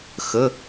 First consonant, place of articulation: velar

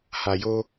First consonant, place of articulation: glottal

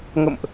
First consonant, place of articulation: velar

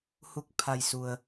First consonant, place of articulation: glottal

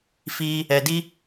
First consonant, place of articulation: labial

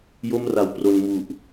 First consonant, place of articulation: palatal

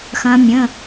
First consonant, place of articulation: velar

